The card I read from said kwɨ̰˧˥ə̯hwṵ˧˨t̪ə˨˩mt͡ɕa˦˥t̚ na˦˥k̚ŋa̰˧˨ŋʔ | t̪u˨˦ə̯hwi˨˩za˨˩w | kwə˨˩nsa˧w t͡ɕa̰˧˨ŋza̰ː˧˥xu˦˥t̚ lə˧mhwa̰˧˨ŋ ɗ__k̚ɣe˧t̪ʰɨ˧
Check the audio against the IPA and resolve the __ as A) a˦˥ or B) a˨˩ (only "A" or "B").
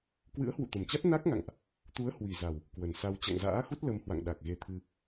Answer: B